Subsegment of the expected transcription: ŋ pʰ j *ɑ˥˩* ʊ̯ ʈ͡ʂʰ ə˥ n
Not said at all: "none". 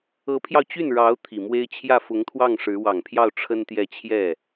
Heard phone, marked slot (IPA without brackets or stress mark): ɑ˥˩